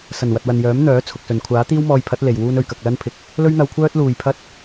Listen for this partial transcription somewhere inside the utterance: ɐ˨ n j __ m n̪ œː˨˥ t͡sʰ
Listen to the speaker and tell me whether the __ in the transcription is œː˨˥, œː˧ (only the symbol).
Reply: œː˨˥